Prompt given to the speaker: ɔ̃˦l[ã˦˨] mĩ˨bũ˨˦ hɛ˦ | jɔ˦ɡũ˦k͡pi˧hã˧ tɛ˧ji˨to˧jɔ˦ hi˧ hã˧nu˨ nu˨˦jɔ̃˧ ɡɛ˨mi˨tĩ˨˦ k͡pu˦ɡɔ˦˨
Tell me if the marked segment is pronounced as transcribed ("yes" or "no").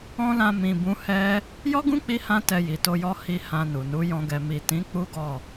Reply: no